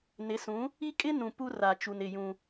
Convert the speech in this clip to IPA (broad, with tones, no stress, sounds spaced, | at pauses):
n ɪ˨˦ s ũ˨˦ | i˦ kʼ ɪ˦ n ũ˨ p u˦ r a˨ t͡ʃ u˨ n ɪ˦˨ j ũ˦